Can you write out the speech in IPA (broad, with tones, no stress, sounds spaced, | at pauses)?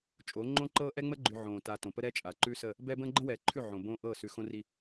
t͡ʃʼ o˨˦ ŋ͡ǃ õ˦ ǃ ɤː˦ ʔ ɛ˦ ŋ͡m ə˦ ɡ͡ǃ ʉ˨ ʕ õː˨ t a˨ t õ˨ p ə˦ ɾ ɛ˦ t͡ʃʼ a˨ ǃ ʉ˦ s ə˦˨ | b ɛ˦ b ə̃ː˦ ɡ͡ǃ ə̃˦ w ɛː˨ ǃʰ ʉ˦˨ ʕ õ˨ b õː˦ ʔ ɤː˦˨ s ʉ˨ x õ˦ r i˦